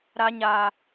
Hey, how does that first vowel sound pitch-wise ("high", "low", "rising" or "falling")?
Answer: high